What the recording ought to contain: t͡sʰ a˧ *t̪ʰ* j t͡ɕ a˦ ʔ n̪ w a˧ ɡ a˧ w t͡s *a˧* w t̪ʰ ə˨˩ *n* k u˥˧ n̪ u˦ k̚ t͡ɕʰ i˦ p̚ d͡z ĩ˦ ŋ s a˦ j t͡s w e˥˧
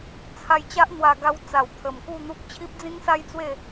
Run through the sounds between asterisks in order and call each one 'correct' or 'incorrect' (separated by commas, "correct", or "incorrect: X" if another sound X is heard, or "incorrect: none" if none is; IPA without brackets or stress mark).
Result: incorrect: none, incorrect: a˨˩, incorrect: m